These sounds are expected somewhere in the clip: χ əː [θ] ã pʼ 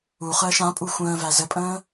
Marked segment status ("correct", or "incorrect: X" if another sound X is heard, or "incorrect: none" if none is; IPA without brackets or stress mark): incorrect: ʃ